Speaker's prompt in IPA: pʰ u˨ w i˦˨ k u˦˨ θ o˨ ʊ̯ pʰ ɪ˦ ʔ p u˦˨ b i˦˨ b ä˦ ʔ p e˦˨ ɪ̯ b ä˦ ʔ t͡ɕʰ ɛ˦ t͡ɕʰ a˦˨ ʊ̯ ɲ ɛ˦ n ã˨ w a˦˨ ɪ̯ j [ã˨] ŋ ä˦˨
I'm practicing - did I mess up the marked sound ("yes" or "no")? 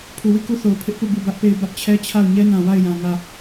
no